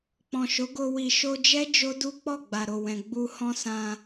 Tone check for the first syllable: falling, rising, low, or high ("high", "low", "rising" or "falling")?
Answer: low